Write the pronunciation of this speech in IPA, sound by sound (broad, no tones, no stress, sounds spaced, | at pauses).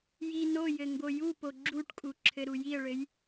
j i n o j ɘ ŋ ɡ o j u p o ɡ͡ǁ u ʈ kʼ u ǁʰ ɘ ɾ u j i ə̯ ɭ ɘ j